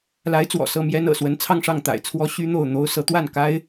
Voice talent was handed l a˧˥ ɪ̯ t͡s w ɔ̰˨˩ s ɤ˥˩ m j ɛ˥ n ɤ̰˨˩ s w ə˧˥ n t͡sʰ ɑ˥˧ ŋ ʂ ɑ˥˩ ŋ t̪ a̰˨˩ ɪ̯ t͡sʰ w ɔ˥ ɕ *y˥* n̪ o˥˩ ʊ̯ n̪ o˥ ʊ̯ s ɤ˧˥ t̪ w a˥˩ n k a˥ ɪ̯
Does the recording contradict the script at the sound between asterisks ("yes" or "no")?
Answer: no